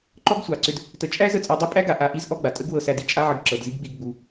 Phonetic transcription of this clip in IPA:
ǃ ɔ˦ ɡ sʷ ɑ˨ ǀ ʏ˧ d | t ə˨ t͡ʃʼ æ˦ z ə˦˨ t͡sʼ a˧ dˤ i˦ pʼ æ˦ ɡ a˨ ʔ a˧ ʔ i˦ z ʔ ɔ˦ ɡ͡b a˨ tʼ ə˦ ɡ w ɤ˧ s æ˧ d i˧ t͡ʃʼ a˦ ʕ ə˧ ɡ ǁ ɤ˨ d z i˦ ɡ ɡ͡b i˧ ɡ ɡ͡b u˧

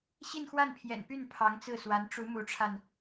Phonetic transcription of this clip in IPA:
ɕ i˥˧ n x w a˥˩ n pʰ j ɛ̰˨˩ n p y˥˩ n pʰ ɑ˧˥ ŋ t͡s ɹ̩˥˩ s w a˧˥ n ʈ͡ʂ u˧˥ m u˧˥ ʈ͡ʂʰ a˧ n

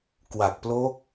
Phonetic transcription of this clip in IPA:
k w a˨˩ k̚ p l o˦˥ k̚

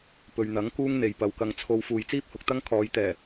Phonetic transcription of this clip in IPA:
p ɵ˨ ɥ n̪ ɐ˨˥ ŋ k uː˥ ŋ n̪ e˨ j p ɐ˨˧ w k ɐ˧ ŋ t͡sʰ o˧ w f uː˨ j t͡s iː˥ p̚ h ʊ˨ k̚ t̪ ɐ˥ ŋ kʰ ɔː˨˧ j t̪ ɛː˨˩

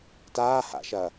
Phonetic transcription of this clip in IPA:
t aː h a̰ ʃ ɐ

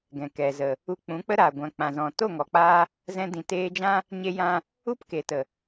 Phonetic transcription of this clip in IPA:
ɡ ɛ̃˨ k ɛ˨ z ə˨ | u˧ k͡p ũ˨˦ k͡p ə˦ ɾ aː˨ ɡʷ ã˨ k͡p ã˨ z ɔ̃˨ t o˦˨ ŋ ɔ˨ k͡p aː˧ | z ɛ̃˧ d ĩ˨ t eː˧ d͡ʒ ã˦ | ɲ e˧ j ã˧ | u˦ p k e˨ t ə˨

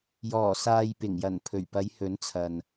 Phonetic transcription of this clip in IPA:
j ɔː˨˩ s aː˨ j p ɪ˨˩ ŋ j ɐ˨˩ n pʰ ɵ˨˩ ɥ p ɐ˨˧ j h ɵ˨˥ n t͡sʰ ɐ˨ n

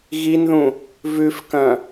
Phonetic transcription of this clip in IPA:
ɣ i n ð ũ | v ʉ f k ɐ̃

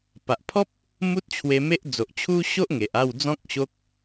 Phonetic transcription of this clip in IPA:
p a˨ ʔ pʰ ɔ˦ p̚ | m u˦ t̚ t͡ɕʰ w e˧ m e˦ ʔ d͡z o˨ ʔ t͡ɕʰ u˦ ɕ o˦ ʔ ŋ e˨ ʔ a˥˧ w d͡z ɔ̃˦ k̚ ɕ o˦ k̚

